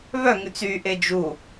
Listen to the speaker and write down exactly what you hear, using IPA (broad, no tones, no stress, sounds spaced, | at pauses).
β œ ŋ ʉ t͡s y ʔ e d͡ʒ u